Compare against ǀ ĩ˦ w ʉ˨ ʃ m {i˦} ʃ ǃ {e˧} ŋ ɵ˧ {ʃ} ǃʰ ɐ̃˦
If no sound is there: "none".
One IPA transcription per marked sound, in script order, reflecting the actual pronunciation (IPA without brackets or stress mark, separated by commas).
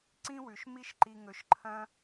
i˦, i˧, ʃ